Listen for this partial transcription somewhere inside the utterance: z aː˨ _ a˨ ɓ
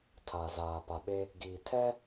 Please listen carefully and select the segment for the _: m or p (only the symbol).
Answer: p